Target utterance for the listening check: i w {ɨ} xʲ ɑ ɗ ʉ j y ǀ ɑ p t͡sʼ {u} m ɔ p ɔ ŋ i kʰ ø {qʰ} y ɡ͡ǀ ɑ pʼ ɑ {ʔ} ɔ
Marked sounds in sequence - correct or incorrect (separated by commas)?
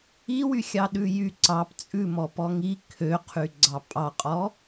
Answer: incorrect, incorrect, correct, incorrect